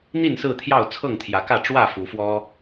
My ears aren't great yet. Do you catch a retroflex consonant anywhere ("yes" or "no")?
yes